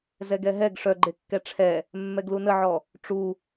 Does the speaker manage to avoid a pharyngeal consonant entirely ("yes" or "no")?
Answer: no